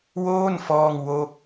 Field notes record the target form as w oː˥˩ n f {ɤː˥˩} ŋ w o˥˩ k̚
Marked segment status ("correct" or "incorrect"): incorrect